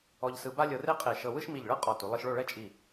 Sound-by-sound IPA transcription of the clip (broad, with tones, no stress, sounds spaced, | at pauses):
ɔ˧ ʎ s ɯ˧ b a˥ lʲ ɤ˧ r e˥ qʼ e˧˩ ʃ ɤ˧ w ɯ˥ ʃ m i˧˩ ʎ ɭ ɤ˥ qʼ ɔ˧˩ t u˩˧ lˠ ɯ˧ ʃ ɭ o˥˧ ɭ ɛ˥ t͡ʃʼ i˧˩